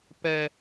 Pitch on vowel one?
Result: high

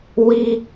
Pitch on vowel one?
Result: high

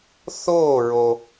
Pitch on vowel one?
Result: falling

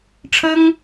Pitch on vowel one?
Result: high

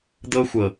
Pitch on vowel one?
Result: high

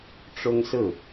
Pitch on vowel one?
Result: high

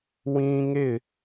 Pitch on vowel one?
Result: high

